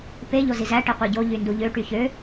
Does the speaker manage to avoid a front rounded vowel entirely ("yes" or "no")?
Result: no